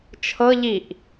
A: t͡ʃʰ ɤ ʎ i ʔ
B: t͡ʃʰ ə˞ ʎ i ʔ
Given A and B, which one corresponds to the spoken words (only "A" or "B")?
A